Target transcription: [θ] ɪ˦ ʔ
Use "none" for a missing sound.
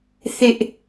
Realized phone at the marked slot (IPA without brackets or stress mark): θ